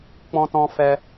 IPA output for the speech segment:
k͡pɔ̃˦tɔ̃˦fɛ˦

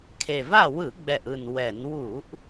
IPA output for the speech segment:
kʰe˨˩va˥˨ wɯ˧˩˧ɡ͡bɛ˨˩ʔɯ˨˩n wɛ˧˩˧n wu˧˩˧ʔ

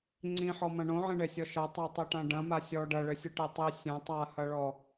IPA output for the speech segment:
ŋ͡ǀĩħɔmɐ̃ ɳõʕẽɳesʲɔ ʃɐ tˤɘtˤiʈã ɖɐ̃ma sʲɔ ɖɐɭɘsʲɨʈe tˤi sʲɐ̃ tˤahɐɭɔ

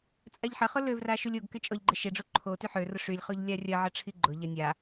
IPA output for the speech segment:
t͡sʼaʎħɐχʊ løvra ʃulʲoɡkɪ t͡ʃʼɔʎɡ͡ǃɪ ʃɪɖ͡ʐo ǃʰo tyħørʊ ʂylʲχoʎ lʲarʲɐʕɐ ʈ͡ʂʰiɡ͡ǃʊʎɐ nʲa

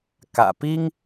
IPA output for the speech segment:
kä̰˨˩pi˦ŋ

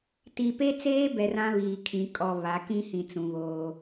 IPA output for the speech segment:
ti˨pe˦t͡seː˦ bɛ˨r ã˦βiː˨kʰĩ˨ kʼɔ˨ βa˨˦ kĩ˦hĩ˨ t͡sũ˨βoː˦

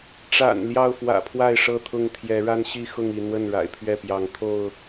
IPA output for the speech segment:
ʈ͡ʂa̰˨˩n ljɑ˥˨ʊ̯fwä̰˨˩pʰwa˥˨ɪ̯ ʂɤ˥˨t̪ʰʊ˥˨ŋt̪ʰjɛ˨˦ ɻa˦nɕi˥˨xʊ˥˨ŋi˥˨ n̪wə˥˨nɻa̰˨˩ɪ̯pʰɥɛ˥˨pjɑ˨˦ŋ t̪ʰo˥˨ʊ̯

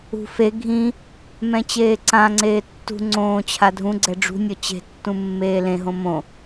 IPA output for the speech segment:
ṳ fe ɡʱĩ | mɛ̃t͡ɕeːǀãŋ͡ǀeː tːṳ ŋ͡ǀõː t͡ɕʰadʱũɡ͡ǀɛ ɖ͡ʐṳnʲɔ t͡ɕe̤tːũ mːeːlẽɦõ mõ

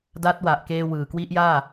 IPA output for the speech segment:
da˦˥t̚ wa˨˩ʔkeː˧ wɯː˨˩ kwi˦˥ʔjaː˥˩

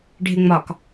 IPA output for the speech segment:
ɖʱɪŋ͡mɒk

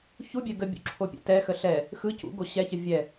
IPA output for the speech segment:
çubʲɛ ɡəbʲṵ ǁʰopʲɛ̰tɛxə ɬɛ | xɯ cṵɡo ɕɛçə vʲɛ

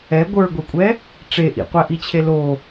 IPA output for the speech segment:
ɛ ɡʷə˞ɡʷekʷʼɛ | ʈ͡ʂe ʔḭqʷæʔit͡ɕʰe lo

